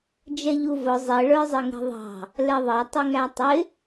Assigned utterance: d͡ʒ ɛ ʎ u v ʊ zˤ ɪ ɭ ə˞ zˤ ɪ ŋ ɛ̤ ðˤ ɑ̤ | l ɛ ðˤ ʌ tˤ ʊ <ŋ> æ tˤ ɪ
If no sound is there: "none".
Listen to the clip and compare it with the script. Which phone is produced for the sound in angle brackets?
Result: ŋ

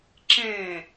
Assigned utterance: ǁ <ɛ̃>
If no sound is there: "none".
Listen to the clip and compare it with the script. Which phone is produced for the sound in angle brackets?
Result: ɛ̃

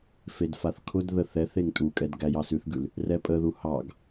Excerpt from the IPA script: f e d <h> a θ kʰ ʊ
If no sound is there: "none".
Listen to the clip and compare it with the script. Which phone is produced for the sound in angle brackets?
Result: f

